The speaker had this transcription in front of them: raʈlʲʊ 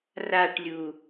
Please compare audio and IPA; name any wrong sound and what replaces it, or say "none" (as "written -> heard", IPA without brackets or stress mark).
ʊ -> u